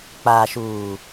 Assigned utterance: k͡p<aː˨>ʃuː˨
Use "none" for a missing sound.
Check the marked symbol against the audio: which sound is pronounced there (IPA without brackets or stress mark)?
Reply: aː˨